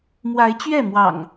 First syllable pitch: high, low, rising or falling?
rising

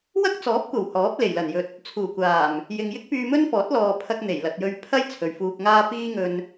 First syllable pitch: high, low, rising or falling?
high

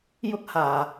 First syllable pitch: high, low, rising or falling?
high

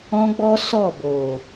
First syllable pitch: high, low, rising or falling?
high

